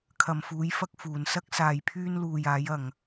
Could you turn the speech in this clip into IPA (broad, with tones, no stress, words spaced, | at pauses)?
kʰɐ˨mfuː˨˧jfɐ˧k̚ fuː˨nsɐ˥k̚ saː˧jpʰyː˥nluː˧j aː˨˧jɐ˨ŋ